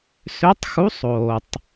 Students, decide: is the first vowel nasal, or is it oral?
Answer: oral